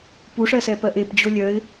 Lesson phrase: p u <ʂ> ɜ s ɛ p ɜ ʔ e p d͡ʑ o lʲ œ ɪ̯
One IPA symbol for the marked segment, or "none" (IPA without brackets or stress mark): ʂ